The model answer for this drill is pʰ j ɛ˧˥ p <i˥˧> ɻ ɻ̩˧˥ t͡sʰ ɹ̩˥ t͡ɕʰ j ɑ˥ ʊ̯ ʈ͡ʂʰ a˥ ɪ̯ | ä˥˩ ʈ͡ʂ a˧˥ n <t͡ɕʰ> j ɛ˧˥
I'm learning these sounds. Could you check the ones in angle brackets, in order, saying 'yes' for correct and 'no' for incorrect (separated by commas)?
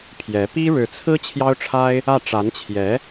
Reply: no, yes